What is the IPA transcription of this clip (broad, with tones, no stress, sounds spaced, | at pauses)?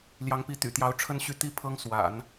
l j ɑ˧˥ ŋ p i˧˥ t̪ y̰˨˩ t̪ j ɑ˧˥ ʊ̯ ʈ͡ʂʰ ə˥ n ɕ y˥˩ t̪ i˥ pʰ ɤ˥ ŋ s w a̰˨˩˦ n